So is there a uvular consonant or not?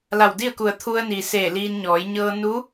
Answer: no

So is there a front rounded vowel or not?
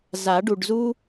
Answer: no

